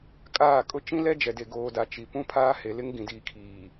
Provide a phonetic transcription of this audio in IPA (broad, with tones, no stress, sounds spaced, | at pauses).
kʼ aː˦˨ kʼ ʊ˦ t͡ʃ ĩ˦ l ɛ˦ d͡ʒ ɛ˨ d e˨ ɡ oː˨ d a˨ t͡ʃ i˨ p ũ˦ pʰ aː˦ h e˨ l ɪ˦ ŋ ɡ ĩ˨ d iː˨ kʰ iː˨